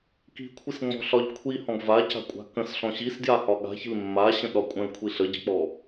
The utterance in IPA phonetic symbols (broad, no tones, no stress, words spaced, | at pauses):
ki̤kʷʰisŋ͡mɔ̤ɬɒʎ kʷʰihɔ̃ɡ vaca̤kʷʼa̤ kə̃sɬɔ̃ ɕisdjahɒ ɠa̤çi̤l mːaɕə̃ɗɒ kʷʼə̃lkʷʰi ɬəɟə̤k͡pɔ